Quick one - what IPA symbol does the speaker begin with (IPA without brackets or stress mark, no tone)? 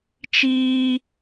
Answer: t͡ʃ